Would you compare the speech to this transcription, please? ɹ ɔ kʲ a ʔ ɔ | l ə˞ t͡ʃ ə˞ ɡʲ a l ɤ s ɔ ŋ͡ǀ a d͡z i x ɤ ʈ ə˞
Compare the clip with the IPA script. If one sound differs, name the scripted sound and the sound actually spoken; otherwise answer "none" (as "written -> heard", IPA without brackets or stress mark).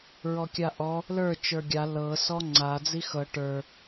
none